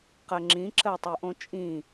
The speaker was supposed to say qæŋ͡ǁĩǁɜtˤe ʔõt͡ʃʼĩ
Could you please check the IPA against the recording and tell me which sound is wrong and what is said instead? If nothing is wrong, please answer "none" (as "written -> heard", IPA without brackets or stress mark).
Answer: æ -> ɜ